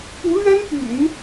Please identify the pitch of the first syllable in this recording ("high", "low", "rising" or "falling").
rising